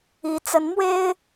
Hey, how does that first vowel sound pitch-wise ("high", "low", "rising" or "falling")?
rising